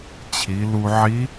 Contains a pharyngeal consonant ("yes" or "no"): yes